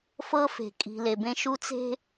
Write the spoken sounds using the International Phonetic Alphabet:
f ɤ˦ f e̤˨ kʼ i̤˨ l e˨ b ẽ˦ ʃ u˦ t͡s e̤˦

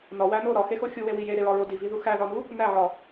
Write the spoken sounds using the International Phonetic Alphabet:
n ɒ w æ n o ɾ ɒ x e x o xʲ u w e w i j e ɾ e ɹ ɒ ɹ o d i v i ð u x æ ð ɒ n u | n æ ʕ ɒ

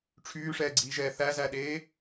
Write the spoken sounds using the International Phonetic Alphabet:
ʈ͡ʂʰ yː ʂ ɛː ɡ͡ǀ iː ʒ ɛː θ æ z æ ɗ eː

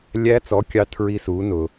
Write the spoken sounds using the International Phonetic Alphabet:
lʲ æ˦˥ t͡s ɔ˨˥ kʲ ɑ˦˥ tʰ ɹ i˦˥ s uː˨˥ n ʊː˧

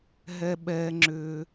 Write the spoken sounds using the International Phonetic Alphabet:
ɦ ɛ˩ ɓ ɛː˩ ŋ͡ǁ ʏː˩

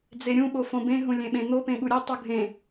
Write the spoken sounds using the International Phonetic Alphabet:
d͡z e ɾʲ ũ ɓ o f õ b ẽ ɦ ũ lʲ ẽ ɓ ẽ n̪ o p ẽ ɠ u ɾʲ e tˤ u ɡʱ ẽ

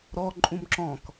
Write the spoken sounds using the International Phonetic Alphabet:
ɾ ɔ ǃʼ ũ m ǁ ɔ̃ k

